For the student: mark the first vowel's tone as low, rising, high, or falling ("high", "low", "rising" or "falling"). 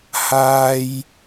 high